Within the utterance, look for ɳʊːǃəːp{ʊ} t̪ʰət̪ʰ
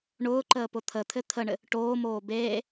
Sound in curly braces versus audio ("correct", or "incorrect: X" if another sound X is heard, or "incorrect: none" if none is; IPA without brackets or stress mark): correct